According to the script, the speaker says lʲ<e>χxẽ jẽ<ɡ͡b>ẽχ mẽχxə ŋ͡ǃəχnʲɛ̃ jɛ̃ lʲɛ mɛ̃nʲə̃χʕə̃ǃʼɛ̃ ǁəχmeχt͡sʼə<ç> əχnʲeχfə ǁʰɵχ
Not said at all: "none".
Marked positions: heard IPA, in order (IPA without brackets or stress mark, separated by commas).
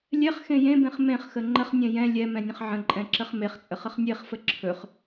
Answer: ɛ, b, χ